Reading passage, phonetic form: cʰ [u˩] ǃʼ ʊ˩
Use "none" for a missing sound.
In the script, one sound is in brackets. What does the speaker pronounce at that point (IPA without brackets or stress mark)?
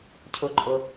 ʊ˩